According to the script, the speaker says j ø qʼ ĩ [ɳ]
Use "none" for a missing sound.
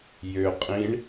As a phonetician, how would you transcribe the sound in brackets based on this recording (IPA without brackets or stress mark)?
ɳ